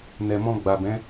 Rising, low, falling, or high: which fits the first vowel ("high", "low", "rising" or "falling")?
low